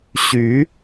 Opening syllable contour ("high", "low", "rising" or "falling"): rising